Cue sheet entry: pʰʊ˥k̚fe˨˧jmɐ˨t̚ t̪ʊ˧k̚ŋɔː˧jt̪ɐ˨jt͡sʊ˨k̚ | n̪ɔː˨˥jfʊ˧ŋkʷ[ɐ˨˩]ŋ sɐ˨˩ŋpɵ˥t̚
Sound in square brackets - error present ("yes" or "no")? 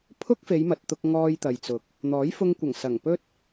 no